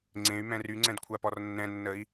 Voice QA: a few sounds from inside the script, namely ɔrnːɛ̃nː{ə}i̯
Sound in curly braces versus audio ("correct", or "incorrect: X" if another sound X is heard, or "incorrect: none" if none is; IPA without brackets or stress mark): correct